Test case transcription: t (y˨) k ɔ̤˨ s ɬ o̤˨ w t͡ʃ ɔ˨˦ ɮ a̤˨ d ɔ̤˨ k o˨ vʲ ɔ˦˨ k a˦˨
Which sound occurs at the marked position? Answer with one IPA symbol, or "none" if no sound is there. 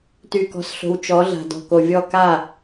y˨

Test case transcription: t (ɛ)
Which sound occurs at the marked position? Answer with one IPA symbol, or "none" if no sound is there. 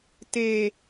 e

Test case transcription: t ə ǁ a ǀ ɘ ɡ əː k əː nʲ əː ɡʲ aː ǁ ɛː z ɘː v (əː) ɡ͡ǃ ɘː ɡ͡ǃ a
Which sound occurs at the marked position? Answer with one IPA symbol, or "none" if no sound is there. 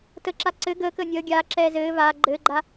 aː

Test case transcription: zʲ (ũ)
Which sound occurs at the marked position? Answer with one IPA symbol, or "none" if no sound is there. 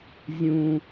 ũ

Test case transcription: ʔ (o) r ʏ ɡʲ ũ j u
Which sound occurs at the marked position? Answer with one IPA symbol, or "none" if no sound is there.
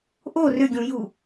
o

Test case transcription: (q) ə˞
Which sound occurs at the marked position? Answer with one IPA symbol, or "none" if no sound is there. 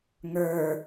ŋ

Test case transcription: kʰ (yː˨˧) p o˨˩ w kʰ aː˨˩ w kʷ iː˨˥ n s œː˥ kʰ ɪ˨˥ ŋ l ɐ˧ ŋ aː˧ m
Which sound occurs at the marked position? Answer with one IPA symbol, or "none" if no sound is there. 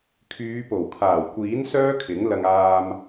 yː˨˧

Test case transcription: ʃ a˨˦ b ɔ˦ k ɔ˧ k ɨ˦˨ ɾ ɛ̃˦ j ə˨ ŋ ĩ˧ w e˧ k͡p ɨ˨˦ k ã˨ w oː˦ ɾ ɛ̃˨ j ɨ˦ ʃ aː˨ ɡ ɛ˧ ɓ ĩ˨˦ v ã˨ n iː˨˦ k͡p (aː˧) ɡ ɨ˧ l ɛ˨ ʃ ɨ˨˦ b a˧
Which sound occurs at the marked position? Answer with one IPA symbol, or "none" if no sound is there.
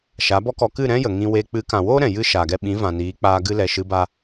aː˧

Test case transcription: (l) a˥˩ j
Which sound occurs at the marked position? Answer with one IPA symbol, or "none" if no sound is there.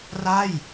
r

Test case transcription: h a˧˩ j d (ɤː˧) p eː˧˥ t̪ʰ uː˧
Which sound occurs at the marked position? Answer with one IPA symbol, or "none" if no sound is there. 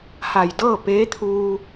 ɤː˥˨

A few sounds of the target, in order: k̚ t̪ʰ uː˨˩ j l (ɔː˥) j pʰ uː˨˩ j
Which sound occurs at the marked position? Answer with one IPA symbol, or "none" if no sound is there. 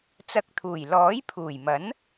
ɔː˨˥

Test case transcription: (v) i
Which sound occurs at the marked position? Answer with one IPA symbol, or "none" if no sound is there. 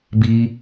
b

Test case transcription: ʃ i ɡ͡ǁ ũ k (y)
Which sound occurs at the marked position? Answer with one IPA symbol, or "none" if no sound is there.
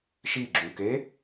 e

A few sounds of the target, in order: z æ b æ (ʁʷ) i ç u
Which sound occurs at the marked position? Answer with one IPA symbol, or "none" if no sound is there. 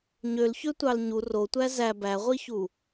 ʁʷ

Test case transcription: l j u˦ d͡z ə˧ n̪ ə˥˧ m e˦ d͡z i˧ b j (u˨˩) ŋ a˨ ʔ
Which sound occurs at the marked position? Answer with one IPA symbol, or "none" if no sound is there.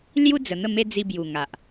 u˨˩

